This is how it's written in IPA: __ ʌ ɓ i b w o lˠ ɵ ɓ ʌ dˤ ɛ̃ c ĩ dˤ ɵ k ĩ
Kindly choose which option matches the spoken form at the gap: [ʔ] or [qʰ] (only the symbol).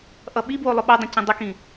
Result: ʔ